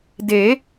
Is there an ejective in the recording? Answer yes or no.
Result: no